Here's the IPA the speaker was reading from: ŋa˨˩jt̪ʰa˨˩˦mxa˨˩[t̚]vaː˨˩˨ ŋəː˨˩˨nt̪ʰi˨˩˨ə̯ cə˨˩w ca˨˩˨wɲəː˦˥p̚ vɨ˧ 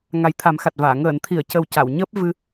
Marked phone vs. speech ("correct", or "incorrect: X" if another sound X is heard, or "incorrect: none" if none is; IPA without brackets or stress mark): correct